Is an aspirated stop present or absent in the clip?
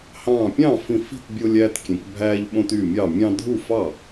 absent